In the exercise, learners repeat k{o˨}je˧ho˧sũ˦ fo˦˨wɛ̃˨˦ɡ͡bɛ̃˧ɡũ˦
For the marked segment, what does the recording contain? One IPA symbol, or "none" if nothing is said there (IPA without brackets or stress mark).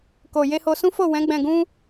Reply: o˨